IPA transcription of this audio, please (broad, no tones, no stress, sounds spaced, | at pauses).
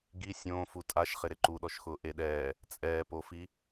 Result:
ɡ i sʲ õː f u tʼ a ʃ χ ɪ ɾ ɪ ǃ u ɗ ɔ ʃ x ʊː ʔ e ɗ ɛː | t͡sʼ ɛː p o f i